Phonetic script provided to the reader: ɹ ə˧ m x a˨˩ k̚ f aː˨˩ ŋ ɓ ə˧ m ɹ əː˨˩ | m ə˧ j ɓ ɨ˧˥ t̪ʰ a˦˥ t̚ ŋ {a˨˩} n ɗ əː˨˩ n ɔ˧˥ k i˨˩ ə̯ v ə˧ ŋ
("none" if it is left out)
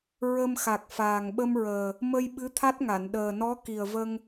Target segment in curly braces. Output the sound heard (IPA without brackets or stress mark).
a˨˩˨